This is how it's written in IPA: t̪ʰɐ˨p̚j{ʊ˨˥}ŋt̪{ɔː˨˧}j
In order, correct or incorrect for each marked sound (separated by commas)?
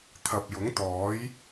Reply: correct, incorrect